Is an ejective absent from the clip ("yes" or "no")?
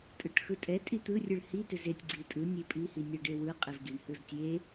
no